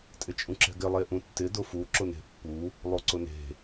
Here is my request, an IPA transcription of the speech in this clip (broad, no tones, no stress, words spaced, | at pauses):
tʼɪt͡ʃʼũǁɛ̤ɡɪ lˠeʔũtːɪ dʊfu ǁʊne̤pːu | lˠoǀʊne̤